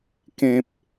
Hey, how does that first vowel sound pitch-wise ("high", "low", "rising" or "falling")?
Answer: high